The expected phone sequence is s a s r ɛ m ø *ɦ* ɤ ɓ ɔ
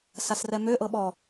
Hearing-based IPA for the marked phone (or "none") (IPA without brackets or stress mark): ʔ